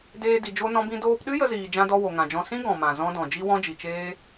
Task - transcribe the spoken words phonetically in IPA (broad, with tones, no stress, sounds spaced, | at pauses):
d eː˧ d i˨ d͡ʒ o˦ n ɔ̃˦ b ĩ˦ d oː˧ p ɗ ɨ˦ j ə˧ z iː˨ d͡ʒ ã˧ d ɔ˧ w o˨ ŋ ã˨ d͡ʒ ɔ̃˧ s ĩ˦ ɡ ɔ̃˨ m ã˨ z ɔ̃˦ d ɔ̃˨ d͡ʒ i˦ w ɔ̃˦ d͡ʒ i˨ t͡ʃ eː˦